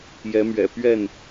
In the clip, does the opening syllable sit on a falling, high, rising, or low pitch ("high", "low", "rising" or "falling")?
rising